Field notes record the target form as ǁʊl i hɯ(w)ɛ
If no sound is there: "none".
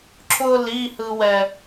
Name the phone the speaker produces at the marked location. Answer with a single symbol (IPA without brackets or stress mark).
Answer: w